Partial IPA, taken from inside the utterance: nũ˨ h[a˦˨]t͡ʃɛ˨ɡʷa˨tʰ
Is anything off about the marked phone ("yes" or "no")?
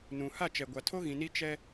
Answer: no